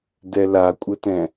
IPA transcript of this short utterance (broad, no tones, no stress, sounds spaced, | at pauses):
d ɛ l a kʷʼ ə t ɛ̃